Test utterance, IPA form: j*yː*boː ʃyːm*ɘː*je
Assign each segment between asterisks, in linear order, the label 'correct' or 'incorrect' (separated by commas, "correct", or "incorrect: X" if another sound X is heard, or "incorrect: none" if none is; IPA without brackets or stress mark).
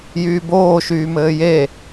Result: correct, correct